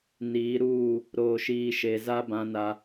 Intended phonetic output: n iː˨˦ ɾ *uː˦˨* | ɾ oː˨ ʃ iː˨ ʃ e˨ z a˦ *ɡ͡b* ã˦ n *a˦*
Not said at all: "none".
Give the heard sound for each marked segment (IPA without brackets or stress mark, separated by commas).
uː˦˨, b, a˦